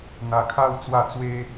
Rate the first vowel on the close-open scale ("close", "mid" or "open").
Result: open